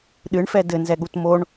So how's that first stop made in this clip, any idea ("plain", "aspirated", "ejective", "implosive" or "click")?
implosive